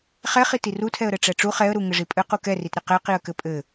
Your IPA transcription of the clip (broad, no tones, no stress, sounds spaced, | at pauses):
χ ɛ χ i t i r u tʰ ɛ ə̯ ɾ ɘ ʈ͡ʂ ɛ ʈ͡ʂ u χ ɛ ə̯ ɾ u ŋ ɘ ʐ i pʼ ɘ q u k ɛ r i t ɾ ɘ q ɛ q i ə̯ k ɘ pʼ ɘ